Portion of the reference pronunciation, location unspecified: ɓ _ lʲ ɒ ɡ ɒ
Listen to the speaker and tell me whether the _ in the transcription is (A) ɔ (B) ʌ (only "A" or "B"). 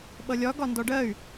B